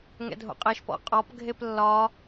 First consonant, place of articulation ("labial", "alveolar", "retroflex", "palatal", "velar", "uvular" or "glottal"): velar